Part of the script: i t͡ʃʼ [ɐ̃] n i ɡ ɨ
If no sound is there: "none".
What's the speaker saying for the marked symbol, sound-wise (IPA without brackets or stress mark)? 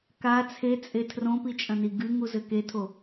ɐ̃